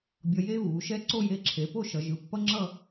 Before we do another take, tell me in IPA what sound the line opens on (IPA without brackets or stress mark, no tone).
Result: bʲ